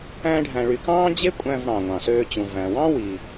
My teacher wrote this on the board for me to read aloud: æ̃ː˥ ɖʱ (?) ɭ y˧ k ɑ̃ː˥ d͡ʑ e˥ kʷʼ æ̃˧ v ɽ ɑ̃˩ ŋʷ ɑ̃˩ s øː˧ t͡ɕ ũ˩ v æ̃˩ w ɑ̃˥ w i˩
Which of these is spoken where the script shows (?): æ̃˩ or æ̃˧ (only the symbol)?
æ̃˧